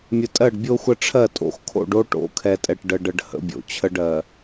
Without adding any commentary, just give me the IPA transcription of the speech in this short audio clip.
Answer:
mʲə˨tʼɜ˦˨ɖbʲo˦xʷə˦ ʈ͡ʂʰɜ˦˨tʼo̰˨xkʰo̰˦˨ɖ o˦ʈo̰˨˦kʰɛ˨tʼɛ˨ʈ ɖə˨ɖə˨ɖ hə̰˦bʲo̰˨t͡ɕʰə˦ɖ ɜ˨

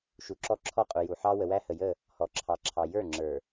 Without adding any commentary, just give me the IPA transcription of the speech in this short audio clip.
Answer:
ʃu˨ǁɔ˦ǁʰɔ˦ qʼu˨ju˨ ħɑ˦ wə˨wæ˦hə˨jə˦˨ | hɔ˨ǁʰɑ˨ ǁʰɑ˨jə˞˦˨ ŋ͡ǁə˞˨

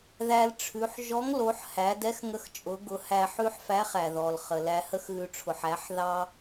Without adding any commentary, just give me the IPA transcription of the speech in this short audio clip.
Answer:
ðæ˧lʈ͡ʂʰʉ˩˧ħ ʒɔ˧˥ŋlo˩˧ħ hæ˩˧dɛ˧˥xŋə˧xt͡ʃʼʊ˩˧ ɡʊ˩˧hæ˧ħʉ˥ħfæ˧˥ χæ˩ðɔ˩lχə˩ læ˧hə˥xɣʉ˧ ʈ͡ʂʰʊ˩ħæ˩˧ħ ðɑ˥

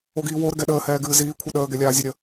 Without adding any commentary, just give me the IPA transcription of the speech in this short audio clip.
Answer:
oɡiːwo ɾəɡɛɗəː hɛːɡɨːziː kʷʰɛɗəː ɡɛlʲaːzʲoɾʲə

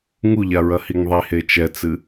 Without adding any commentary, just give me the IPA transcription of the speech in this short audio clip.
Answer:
ŋuʎaɹɐhiŋ ðˤihe t͡ʃɛt͡sɨ

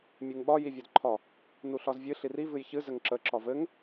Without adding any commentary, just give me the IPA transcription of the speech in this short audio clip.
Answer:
mʲɨŋɓɒ jivʲɒdǃʰɒ | nuɬɒzvʲɨ ɬiri vɨjçɨ zɘŋǁə ǁɒvɘŋ

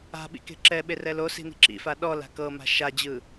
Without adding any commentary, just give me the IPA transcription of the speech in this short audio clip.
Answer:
a̤ɓḭ ke̤ǁɛɓe rɛlosi̤ ni̤ǁḭfa ɗɔl a̤kɤma̤ ʃad͡ʑɯ

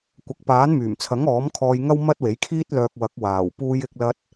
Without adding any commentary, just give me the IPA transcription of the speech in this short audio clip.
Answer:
kʷɐ˨k̚paː˨˥n myː˨˩mt͡sʰɐ˨˥ŋ ɔː˨˥mkʰɔː˧j ŋɐ˥wmɐ˥t̚we˨˥jkʰiː˥t̚ lœː˧k̚wɐ˨˥k̚ waː˨˩wpuː˧jɪ˧k̚lɐ˧t̚

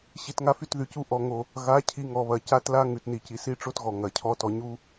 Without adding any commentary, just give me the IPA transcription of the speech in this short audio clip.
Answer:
ɕi˨tŋa˧ fy˧tðy˨cu˧ ʔɔ˨ ŋo˨ | ɣa˨˦ cʰi˧ŋɔ˨βɐ˨ ca˦tla˦ ŋʉ˨tni˨ci˨si˦ ʈ͡ʂo˦tɣɔ˨ ŋɐ˨ cʰɔ˧tɔ˨ɲu˦

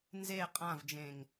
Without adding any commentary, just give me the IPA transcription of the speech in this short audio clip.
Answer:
nze qʼãvd͡ʒẽŋ

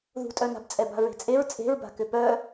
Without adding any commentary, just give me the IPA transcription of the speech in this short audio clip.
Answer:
ðṳtʼœna̤b t͡sʼɛba̤ɹe̤t͡sʼeɹ t͡sʼe̤ɹba̤kʏ pœ

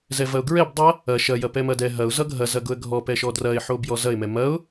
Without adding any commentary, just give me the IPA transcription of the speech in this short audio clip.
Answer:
zɛvɐʊ̯ɡɹɛb dˤɐ | ɐ ʃɐ jɐpɛmɐdɛ ɦɐʊ̯ zʌɡʱɐ zɐɡʊə̯ɡʱɔ pɛʃɔdrɐɪ̯ ħobjɔzɐɪ̯ mɛmɐʊ̯

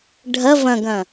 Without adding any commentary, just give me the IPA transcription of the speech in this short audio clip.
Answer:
ɖʱɐ vɐ̃ɡɐ̃

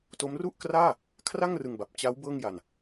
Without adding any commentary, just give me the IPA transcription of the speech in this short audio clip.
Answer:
to˦˥mru˥˩ʔkraː˥˩ | kʰra˥˩ŋrɯ˧ŋba˨˩p̚ t͡ɕa˦˥w bɤː˥˩ŋja˧n

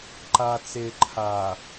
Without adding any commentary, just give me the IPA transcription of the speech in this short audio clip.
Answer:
ǃa t͡se ǃʰa

